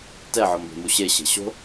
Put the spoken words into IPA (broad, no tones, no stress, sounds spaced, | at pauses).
t ɛ ʕ ɔ m b e̤ m u ɕ e ɕ e̤ ɕ o̤